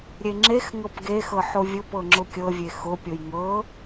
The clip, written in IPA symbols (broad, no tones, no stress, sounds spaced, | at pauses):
ɾʲ e ŋ͡ǁ e x ŋ ɤ p ɡ e x ɤ ħ o vʲ ʊ p ɤ ŋ͡ǁ ʊ kʲ ɤ vʲ e x ʊ pʲ o j ŋ ɤ